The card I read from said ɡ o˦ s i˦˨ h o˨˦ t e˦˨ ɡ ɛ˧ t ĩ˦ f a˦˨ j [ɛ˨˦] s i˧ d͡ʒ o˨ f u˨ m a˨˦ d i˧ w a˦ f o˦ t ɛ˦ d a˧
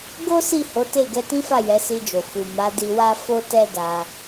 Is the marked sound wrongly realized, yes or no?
no